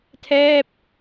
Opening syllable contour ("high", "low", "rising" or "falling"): falling